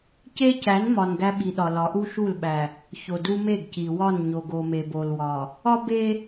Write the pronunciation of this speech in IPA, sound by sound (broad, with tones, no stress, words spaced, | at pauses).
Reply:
ce˦cæ˨˦n mɒ˨n ɡæ˦ɓi˨ɗɒ˨lɒ˨˦ ʔu˦ʃu˦˨lɓæ˨ | ço˨du˦me˦˨ɡci˨ wɒ˦˨nɲo˨ɡo˨ me˨bo˨lwɒ˨ | ɒ˦be˦